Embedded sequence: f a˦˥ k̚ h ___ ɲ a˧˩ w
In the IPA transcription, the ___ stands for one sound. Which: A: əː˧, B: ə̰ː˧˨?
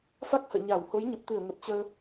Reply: B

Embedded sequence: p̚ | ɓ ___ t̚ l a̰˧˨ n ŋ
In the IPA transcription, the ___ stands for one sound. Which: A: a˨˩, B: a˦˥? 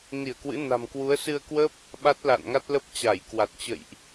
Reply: B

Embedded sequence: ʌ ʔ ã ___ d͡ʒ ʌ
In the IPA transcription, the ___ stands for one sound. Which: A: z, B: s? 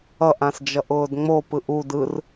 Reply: B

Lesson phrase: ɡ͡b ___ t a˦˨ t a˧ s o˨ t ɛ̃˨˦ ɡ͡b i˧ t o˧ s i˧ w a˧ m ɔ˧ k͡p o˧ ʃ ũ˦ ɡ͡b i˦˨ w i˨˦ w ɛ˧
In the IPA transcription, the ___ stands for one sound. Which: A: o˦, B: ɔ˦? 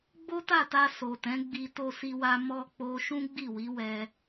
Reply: A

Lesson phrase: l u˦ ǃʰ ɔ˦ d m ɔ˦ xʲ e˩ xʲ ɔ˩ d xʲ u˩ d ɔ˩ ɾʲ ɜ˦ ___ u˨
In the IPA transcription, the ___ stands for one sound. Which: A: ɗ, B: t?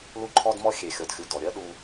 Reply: A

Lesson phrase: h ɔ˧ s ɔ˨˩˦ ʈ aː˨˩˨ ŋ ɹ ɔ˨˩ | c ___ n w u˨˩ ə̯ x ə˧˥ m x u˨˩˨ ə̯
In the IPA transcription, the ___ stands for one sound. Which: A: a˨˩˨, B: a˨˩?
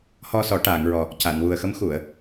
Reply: A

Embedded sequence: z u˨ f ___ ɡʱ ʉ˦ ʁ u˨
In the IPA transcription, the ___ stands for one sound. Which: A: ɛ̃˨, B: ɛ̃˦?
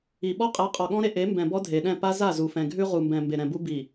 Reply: A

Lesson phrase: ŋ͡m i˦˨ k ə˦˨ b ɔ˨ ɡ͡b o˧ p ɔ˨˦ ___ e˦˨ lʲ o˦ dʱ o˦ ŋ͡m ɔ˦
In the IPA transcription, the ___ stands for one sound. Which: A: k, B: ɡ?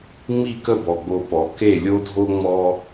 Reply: A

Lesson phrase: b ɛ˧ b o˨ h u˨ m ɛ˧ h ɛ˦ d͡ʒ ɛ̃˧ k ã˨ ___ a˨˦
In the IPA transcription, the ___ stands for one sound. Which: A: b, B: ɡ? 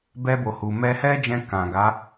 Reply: B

